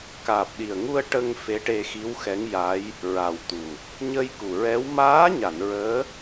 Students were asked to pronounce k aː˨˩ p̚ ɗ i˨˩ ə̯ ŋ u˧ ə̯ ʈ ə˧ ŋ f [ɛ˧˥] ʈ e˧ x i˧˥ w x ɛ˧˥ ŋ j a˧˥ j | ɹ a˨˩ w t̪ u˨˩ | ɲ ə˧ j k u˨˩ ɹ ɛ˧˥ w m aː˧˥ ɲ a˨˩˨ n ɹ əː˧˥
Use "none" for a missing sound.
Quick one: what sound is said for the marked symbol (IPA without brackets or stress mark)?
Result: e˧˥